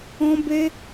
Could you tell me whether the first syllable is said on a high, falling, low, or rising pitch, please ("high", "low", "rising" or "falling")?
high